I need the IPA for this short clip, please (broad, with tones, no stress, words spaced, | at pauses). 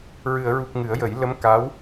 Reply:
ɹɨ˨˩˨ə̯ɹu˨˩k̚ ŋɨ˨˩˦ə̯jə˨˩˦j lə˧˥m ka˧˥w